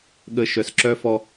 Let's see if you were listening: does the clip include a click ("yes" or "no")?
yes